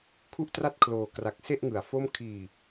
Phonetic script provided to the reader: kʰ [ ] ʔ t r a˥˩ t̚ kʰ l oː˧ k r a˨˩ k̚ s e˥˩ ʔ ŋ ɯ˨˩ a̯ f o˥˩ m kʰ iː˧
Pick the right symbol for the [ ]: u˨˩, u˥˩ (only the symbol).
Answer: u˥˩